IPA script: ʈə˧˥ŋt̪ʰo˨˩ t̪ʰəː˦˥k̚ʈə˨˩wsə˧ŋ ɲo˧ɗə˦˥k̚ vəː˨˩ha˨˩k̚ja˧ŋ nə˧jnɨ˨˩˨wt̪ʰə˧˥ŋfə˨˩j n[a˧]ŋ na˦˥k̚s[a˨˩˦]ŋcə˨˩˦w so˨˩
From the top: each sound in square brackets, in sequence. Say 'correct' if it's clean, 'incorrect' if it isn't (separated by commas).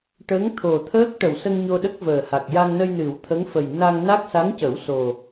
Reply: correct, incorrect